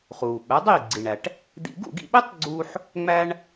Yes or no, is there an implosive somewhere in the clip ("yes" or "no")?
yes